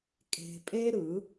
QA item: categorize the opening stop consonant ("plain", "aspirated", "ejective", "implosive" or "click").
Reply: ejective